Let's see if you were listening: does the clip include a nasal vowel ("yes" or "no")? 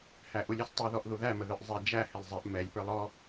no